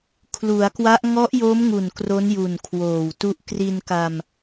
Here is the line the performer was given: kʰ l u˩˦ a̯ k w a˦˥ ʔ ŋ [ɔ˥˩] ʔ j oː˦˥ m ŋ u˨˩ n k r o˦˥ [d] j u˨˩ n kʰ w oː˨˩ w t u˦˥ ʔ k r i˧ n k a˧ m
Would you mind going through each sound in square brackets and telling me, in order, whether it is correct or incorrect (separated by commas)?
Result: incorrect, incorrect